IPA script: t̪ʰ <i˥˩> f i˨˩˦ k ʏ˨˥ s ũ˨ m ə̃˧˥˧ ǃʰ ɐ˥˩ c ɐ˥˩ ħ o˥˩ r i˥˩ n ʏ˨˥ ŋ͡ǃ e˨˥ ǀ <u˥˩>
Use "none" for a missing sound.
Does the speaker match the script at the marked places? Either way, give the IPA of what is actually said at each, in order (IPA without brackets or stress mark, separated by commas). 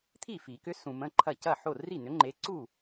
i˥˩, u˥˩